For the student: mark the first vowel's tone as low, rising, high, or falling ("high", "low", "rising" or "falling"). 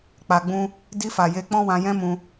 low